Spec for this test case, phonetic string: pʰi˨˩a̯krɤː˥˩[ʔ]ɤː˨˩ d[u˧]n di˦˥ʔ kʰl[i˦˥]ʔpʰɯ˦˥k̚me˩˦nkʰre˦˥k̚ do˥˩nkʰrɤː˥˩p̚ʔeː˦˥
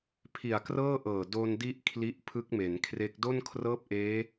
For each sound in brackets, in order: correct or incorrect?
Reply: correct, incorrect: o˧, correct

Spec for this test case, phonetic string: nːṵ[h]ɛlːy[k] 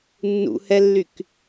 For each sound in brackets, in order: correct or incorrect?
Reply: correct, correct

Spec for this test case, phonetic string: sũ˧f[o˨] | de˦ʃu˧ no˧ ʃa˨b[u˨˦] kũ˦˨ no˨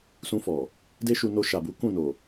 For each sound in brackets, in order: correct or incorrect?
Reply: incorrect: ɔ˨, correct

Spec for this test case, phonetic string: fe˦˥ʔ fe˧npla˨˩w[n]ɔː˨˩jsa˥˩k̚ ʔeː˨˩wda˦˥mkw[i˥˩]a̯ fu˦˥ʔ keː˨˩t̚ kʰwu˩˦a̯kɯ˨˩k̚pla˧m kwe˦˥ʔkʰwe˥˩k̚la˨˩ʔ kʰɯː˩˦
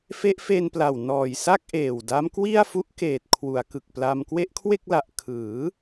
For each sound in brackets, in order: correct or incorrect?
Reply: correct, correct

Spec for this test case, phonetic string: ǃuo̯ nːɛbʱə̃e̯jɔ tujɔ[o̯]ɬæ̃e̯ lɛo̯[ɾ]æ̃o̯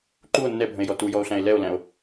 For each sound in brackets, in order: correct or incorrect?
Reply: correct, incorrect: l

